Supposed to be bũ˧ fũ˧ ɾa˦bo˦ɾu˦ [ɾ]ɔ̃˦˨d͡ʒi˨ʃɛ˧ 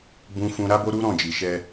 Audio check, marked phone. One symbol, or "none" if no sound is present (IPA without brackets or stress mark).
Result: ɾ